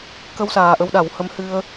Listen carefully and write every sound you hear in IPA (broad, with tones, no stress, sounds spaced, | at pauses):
k ə˧ w s aː˨˩ ʔ ə˧ w ɗ a˨˩˦ w h ə˧˥ m h ɨ˧ ə̯